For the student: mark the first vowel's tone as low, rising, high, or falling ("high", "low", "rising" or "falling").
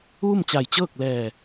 falling